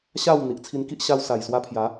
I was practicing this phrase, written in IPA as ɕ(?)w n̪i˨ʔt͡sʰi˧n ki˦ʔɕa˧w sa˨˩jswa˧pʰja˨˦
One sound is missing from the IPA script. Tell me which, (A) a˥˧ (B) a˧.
A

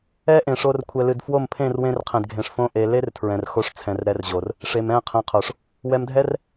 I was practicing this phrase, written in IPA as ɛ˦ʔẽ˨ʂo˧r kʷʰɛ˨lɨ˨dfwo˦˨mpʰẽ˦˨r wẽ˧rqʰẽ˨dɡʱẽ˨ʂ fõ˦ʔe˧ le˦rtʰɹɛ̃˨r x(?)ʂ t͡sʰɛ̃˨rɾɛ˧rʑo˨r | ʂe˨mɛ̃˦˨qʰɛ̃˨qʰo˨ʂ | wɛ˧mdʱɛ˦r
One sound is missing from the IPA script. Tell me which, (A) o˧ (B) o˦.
A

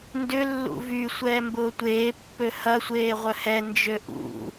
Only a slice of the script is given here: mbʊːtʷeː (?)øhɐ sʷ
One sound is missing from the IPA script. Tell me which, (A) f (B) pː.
B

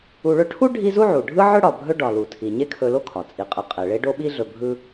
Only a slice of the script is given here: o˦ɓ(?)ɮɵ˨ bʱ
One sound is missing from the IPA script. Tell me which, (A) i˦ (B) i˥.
A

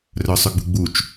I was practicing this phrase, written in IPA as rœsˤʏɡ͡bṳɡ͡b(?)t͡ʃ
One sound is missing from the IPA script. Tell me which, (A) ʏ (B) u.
B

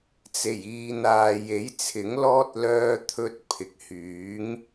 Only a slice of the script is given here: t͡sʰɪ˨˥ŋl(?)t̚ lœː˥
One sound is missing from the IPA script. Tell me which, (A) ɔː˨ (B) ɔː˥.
B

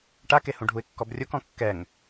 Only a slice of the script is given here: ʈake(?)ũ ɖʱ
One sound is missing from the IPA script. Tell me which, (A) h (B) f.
A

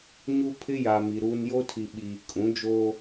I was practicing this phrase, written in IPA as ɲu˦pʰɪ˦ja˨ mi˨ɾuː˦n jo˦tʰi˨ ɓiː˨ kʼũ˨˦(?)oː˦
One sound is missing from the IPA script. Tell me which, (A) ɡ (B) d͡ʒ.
B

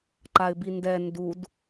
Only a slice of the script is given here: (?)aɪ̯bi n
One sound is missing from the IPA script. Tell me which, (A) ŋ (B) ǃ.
B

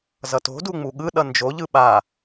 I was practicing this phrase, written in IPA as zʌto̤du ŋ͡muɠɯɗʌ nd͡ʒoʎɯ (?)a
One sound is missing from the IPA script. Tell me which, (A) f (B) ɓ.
B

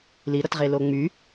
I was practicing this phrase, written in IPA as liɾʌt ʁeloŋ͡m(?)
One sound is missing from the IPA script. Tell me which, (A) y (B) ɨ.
A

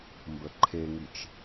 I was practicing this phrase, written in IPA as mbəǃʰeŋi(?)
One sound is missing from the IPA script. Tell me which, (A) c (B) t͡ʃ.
B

